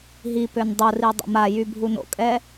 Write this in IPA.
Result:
ɦipøn dˤori dˤo̰majy bʱuno̰kʼɛ

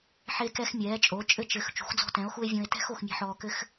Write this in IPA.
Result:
ħe˦kɛ˦xmʲɛː˨˦t͡ʃʼo˨˦ t͡ʃʼɘ˦t͡ʃɘ˨˦x t͡ʃṳ˨˦xd͡zɔ̤˦tɛ̃˨˦o̯xu˦e̯ vʲõ˦e̯ tɛ̤˦x o˨˦xmʲɛ̤˦ħɔː˦ kɘ˦x

